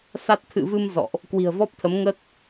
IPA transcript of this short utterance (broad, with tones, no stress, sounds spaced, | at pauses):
s a˦˥ t̚ t̪ʰ ɨ̰˧˨ v ɨ˧ m z ɔ̰˧˨ ʔ | k w i̤˨˩ ə̯ v ɔ˦˥ p̚ t̪ʰ ə˨˦ m ŋ ə˦˥ t̚